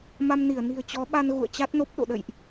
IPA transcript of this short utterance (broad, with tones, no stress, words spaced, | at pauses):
ma˧mni˧˩ə̯ ni̤˨˩ə̯t͡ɕɔ˨˦ɓa˧n ɣṵ˧˨ə̯t͡ɕa˦˥t̚no˦˥p̚ ɗo̰˧˨ɗə̰˧˨jʔ